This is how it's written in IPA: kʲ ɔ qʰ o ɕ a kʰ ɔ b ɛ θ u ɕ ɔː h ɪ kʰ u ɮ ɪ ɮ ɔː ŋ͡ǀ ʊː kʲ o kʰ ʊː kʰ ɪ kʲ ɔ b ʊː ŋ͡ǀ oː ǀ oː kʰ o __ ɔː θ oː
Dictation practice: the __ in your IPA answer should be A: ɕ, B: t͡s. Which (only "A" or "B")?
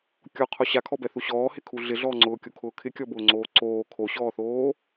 A